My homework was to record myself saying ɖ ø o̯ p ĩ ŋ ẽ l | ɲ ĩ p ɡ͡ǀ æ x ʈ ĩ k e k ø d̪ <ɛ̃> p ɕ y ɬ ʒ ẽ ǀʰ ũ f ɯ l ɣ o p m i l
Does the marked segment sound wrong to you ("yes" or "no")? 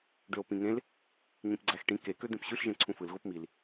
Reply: yes